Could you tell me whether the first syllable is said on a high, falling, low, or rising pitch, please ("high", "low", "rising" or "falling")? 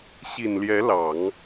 low